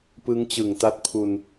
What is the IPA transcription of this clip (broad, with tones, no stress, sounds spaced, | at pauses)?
p ɯ˦˥ ŋ t͡ɕ ɯ˨˩ ŋ t a˦˥ t̚ pʰ u˧ n